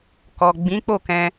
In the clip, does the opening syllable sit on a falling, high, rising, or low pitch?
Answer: low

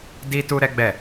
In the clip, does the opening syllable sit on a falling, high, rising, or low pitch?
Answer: high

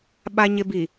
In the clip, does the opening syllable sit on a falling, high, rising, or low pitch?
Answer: low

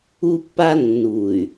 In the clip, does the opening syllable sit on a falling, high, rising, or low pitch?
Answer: high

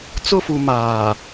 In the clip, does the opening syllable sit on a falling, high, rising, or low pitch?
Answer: falling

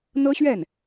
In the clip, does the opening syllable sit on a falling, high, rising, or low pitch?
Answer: high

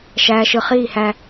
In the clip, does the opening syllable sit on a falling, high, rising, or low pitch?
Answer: low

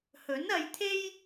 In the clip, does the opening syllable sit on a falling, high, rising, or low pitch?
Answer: rising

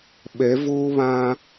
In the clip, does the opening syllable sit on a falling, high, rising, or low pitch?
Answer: rising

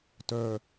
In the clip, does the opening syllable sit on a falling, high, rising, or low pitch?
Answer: low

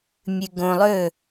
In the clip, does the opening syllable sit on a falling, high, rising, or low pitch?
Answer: low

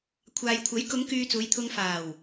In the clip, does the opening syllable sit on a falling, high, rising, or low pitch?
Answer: low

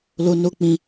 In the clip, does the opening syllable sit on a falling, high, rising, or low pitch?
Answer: low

